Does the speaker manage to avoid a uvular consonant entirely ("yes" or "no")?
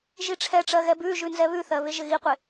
no